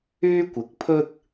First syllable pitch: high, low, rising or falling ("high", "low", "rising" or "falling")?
high